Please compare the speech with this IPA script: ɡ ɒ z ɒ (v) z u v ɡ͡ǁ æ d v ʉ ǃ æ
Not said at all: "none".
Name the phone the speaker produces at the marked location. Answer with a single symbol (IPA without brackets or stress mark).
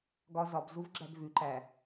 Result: b